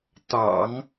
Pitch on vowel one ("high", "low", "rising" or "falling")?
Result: low